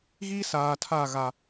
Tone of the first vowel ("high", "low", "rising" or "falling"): high